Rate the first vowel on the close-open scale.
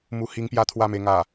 close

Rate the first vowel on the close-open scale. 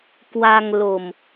open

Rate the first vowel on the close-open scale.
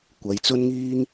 open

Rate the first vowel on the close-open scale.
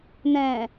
mid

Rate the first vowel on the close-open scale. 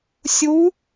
close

